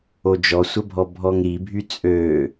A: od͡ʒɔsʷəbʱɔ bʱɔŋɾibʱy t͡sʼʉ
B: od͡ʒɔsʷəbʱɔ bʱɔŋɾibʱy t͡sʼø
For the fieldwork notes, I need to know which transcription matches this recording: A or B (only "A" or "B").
B